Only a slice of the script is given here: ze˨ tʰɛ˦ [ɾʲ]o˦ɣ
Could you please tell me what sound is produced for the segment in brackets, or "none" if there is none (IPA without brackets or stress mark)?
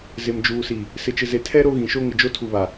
ɾ